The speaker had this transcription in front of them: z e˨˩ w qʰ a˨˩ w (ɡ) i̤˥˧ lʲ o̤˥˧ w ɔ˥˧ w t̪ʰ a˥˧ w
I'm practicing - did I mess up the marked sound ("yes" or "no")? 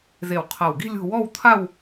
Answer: no